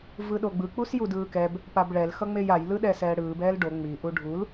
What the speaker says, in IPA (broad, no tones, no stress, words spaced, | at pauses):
vɯɗoɡ͡bɯ k͡pusjudɯːkɛb | pabɭɛl xʌŋ͡mejaj lɯɗɛːsɛːɽɯːb ɛːlɖo ŋ͡mi ʔuɖʱul